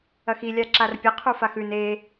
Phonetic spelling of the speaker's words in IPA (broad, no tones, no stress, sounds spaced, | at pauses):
ɐ x i lʲ a ǁ a r pʲ ɐ qʰ u f a x ʉ n e